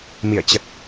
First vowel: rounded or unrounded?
unrounded